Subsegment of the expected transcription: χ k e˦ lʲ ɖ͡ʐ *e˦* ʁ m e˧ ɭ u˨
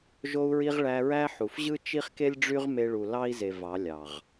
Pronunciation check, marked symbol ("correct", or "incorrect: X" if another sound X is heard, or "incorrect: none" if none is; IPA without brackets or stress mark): incorrect: y˦